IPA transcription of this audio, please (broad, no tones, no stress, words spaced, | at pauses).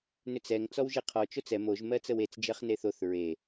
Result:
nʏt͡sɛŋ t͡sɔwʒeqʰɔ t͡ʃot͡sɛ moʒ mɜt͡səwet͡s d͡ʒɜχneθoθ ɹe